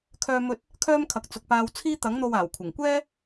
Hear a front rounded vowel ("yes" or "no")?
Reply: yes